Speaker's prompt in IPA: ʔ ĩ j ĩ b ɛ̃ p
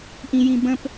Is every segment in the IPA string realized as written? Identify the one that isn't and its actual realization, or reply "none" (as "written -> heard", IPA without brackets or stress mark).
ɛ̃ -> ə̃